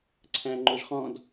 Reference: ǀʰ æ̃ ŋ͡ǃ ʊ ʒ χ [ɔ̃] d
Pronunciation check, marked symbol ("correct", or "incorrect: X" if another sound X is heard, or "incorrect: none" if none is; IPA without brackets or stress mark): correct